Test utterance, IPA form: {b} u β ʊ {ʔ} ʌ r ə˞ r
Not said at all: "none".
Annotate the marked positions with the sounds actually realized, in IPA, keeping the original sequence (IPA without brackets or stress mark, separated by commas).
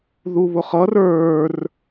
ð, χ